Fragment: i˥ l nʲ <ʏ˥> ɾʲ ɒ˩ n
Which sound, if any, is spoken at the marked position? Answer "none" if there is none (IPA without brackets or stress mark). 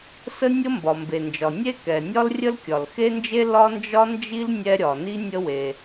ɛ˥